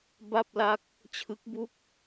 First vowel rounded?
no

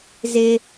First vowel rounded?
no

